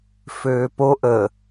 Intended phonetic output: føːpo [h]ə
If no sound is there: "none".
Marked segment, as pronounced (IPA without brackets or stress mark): ʔ